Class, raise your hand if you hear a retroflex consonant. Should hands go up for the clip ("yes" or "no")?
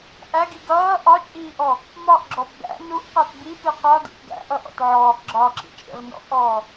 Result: no